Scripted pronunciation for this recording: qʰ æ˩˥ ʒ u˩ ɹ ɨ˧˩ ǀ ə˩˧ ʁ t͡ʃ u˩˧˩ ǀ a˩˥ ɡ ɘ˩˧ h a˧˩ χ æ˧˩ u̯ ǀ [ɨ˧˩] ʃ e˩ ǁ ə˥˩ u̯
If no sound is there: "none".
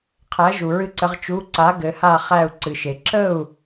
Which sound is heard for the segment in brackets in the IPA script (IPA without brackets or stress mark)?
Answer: ɨ˩